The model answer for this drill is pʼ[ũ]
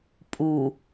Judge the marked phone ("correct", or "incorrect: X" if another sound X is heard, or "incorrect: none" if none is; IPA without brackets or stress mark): incorrect: u